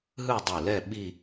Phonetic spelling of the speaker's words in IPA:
ɦ ɯ˥˧ dˤ u˧˩ l ɛ˥˧ ɓ i˥˧

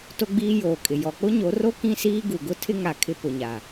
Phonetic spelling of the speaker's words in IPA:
t o˦ ɡ͡b iː˦ j oː˨ kʼ ɪ˨ j ɔ˨ k͡p ʊ˦ ɲ o˨˦ r o˦ k ĩ˦ s iː˦ ɡ u˨ ɡ ʊ˦ tʰ ɪ˦ ŋ a˨ kʰ ɪ˦ p ʊ˨ ɲ a˨

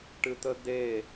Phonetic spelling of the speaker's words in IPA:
ʈ ɨ t̪ ə d̪ e

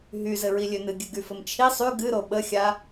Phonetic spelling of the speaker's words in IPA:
ɦ y z ɘ ɹ i lʲ ø n ɨ ɡʲ ɨ ɡ y f ɘ m t͡ʃʰ i sˤ y ɡ ɨ ɾ o ɓ ə xʲ a

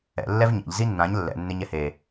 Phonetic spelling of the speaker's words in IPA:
ɛ̰ lː ɛ v ɲ a̰ ʎ z i nː ã ɲ lː ɛ̰ nː e ɲ ɛ h e

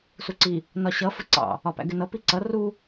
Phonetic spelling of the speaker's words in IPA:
s u ǀ i | n ɒ ɕ ʌ f ə ǀ ɑ̰ | ɒ p æ̰ ɡ ɪ n ʌ p i ǀ ʌ r u

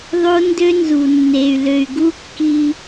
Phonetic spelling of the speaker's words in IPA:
ðˤ o˦ n d ø˦ n z u˨ nː e˨ y̯ l ø˨ y̯ ɡ u˦ kː i˧

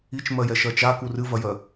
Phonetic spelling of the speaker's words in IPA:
i t͡ʃ m ɜ j ɛ ʃ ɜ t͡ʃ a k u r ɨ v ɐ j ɜ

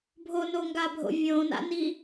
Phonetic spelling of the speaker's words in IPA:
bʱ o n o ŋ ɡ a bʱ o̰ vʲ õ n a̰ n i

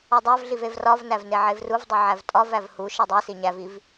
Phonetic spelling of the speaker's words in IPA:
ɒ dˤ æ v ɮ i v e v r ɒ v n æ v n e ʕ e v r u v dˤ u ʕ æ v tʼ ɒ v æ v h u ʃ e dˤ e s i ɲ æ v i v

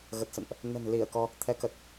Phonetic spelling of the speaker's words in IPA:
ɣ ə˨˩ t̚ s ə̰˧˨ n ʔ | n ə̤˨˩ n l i˧˩ ə̯ k ɔ˧ | t̪ʰ ɛ˨˦ k ə˨˩ t̚

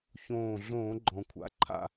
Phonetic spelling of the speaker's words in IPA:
ç õː˧˩ ɮ õː˧˩˧ ɡ͡ǃ ɔ̃˩ kʷʰ a̰˨˦ ǃʰ a̰˧˩

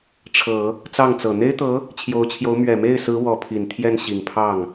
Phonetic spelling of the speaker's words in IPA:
ʈ͡ʂʰ ɤ˨˩˦ | t͡s ɑ˥˩ ŋ t͡s ɤ˨˩ n̪ e˥ ɪ̯ t̪ ɤ˧˥ | t͡ɕʰ j o˧˥ ʊ̯ t͡ɕʰ j o˧˥ ʊ̯ m ɥ ɛ˨˩ m e˥˩ ɪ̯ s ɹ̩˧˥ w ɔ˧˥ pʰ i˨˩ n t̪ʰ j ɛ˥˩ n ɕ i˨˩ ŋ pʰ ɑ˥˩ ŋ

